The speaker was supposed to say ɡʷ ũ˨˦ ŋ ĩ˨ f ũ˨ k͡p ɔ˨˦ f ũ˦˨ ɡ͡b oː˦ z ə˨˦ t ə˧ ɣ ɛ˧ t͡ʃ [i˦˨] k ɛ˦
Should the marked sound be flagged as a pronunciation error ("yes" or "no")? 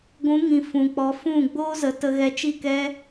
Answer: no